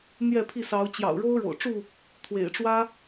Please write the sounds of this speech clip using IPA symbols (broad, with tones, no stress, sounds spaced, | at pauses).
n̪ j ɛ˥˨ pʰ i˥˨ s ɑ˨˦ ʊ̯ t͡ɕ j ɑ̰˨˩ ʊ̯ ɻ o˦ ʊ̯ ɻ o̰˨˩ ʊ̯ ʈ͡ʂ u˥˨ | t̪ʰ w ḛ˨˩ ɪ̯ ʈ͡ʂ w ä˦